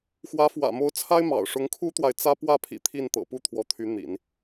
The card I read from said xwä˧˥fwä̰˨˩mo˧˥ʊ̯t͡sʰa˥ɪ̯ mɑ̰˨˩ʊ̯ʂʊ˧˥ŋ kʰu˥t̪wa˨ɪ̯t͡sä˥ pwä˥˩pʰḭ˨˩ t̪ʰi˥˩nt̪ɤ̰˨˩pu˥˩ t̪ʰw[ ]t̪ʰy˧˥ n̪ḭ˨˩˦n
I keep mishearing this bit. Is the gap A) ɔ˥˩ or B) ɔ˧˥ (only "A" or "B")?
B